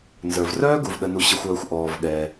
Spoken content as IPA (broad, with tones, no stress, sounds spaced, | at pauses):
n z ə˞˩ v r œː˥ ɡ u˩ v ɗ ə˩ n u˩ ɕ ə˩ xʷ œː˩ xʷ ʔ ɔː˩ v ɠ ɛ˩